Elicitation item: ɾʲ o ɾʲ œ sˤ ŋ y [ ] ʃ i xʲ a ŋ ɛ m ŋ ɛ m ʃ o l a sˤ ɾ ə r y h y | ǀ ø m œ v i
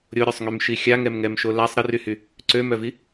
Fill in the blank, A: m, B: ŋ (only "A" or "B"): A